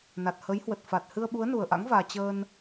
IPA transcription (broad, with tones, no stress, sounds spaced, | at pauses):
n a˨˩ t̚ h ə˨˦ j h w ə˨˩ t̚ f a˨˩ t̚ h ɨ˧ ə̯ ɓ u˨˦ ə̯ n u˨˩ ə̯ ʔ a̰˧˥ ŋ v aː˨˩ t͡ɕ əː˧ n